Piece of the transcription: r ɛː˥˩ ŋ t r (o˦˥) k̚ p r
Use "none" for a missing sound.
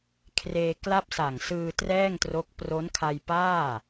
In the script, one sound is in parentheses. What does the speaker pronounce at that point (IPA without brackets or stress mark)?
o˦˥